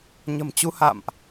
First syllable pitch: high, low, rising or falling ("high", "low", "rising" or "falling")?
low